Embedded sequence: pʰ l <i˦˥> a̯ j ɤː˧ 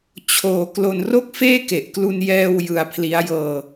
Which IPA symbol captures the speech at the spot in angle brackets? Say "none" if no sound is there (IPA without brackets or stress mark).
i˦˥